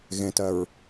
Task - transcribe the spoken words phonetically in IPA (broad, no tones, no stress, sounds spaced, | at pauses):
ɣ ẽ t ɜ ɹ